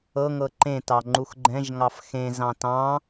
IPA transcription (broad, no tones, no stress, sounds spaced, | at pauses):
ɤ ŋ ɤ ǃ ẽ t ɑ ŋ͡ǃ u x ɡ͡ǃ ɛ̃ ʒ ŋ ɑ f x ẽ z ɑ̃ t ɑ̃